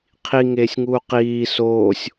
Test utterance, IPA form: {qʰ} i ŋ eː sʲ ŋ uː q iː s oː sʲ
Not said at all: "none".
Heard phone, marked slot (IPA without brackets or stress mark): qʰ